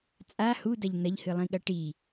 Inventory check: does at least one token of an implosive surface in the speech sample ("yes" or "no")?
yes